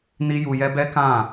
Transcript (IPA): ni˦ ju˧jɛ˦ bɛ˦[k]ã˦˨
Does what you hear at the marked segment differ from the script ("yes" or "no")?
no